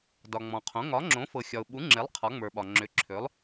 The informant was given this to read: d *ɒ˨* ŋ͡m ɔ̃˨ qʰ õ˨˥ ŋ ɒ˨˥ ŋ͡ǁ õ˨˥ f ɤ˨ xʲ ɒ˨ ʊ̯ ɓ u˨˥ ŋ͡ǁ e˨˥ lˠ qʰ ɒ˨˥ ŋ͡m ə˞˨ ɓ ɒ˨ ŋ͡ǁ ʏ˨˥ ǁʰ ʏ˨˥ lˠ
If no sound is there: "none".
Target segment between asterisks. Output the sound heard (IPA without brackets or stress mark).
ɒ˨